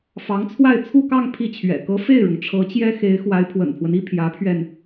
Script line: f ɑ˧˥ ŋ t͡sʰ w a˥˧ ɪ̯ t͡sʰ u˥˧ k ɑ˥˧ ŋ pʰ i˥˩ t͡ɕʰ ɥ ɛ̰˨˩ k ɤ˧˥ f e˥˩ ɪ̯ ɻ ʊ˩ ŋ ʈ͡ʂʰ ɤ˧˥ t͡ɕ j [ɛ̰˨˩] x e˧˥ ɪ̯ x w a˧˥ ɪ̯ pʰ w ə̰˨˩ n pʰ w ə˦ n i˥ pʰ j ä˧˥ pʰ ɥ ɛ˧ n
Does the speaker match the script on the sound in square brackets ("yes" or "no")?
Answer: no